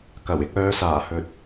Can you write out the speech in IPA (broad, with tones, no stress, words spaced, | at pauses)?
kɐ˨˩wɪ˧k̚œː˨˧saː˨˩ hɵ˨t̚